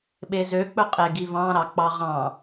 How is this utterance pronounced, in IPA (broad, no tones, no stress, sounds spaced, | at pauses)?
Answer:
ɓ e z ø k͡p ɵ qʼ e ɡ i v ɑ̃ ɾ ɑ k͡p ɑ ʁ ɑ̃